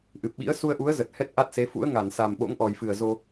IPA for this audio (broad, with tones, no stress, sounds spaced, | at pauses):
ʔ ɨ˨˩ p̚ ɓ ḭ˧˥ ə̯ s u˧ ə̯ ʔ u˨˦ ə̯ z ə˨˩ t̚ h ɛ˦˥ t̚ ʔ a˦˥ t̚ s e˨˦ f ṵ˧˥ ə̯ ŋ a˧˩ n s a˨˩ m ɓ o̰˧˥ ŋ ʔ ɔ˨˩ j f ɨ˨˩ ə̯ z o˧